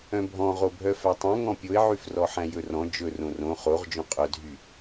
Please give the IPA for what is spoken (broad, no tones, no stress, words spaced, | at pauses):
œ̃bʱɔ̃ ʁobʱœfætˤœ̃ ŋɔ̃pʲoɪ̯ʕyfrɔ ħæ̃jɵrɔ̃ d͡ʒɵ rõrõ χoʁ d͡ʒõqʼœdʱy